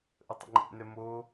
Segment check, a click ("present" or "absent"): present